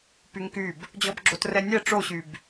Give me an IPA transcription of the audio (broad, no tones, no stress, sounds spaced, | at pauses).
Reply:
p y ŋ k y b | d͡ʑ ɔ b ɡ͡ǁ o t r ɛ nʲ ɛ ʈ͡ʂ o ɕ y b